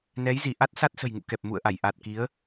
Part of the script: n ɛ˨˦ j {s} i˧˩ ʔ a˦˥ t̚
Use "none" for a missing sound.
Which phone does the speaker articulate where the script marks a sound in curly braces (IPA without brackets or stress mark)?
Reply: z